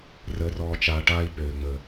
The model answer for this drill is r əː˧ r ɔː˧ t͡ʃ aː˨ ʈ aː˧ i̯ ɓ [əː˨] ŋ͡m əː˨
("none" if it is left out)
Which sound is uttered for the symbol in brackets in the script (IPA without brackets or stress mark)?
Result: øː˨